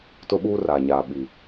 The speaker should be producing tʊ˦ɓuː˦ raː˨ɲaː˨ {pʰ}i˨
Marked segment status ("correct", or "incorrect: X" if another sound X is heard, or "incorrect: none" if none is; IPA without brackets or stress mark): incorrect: ɓ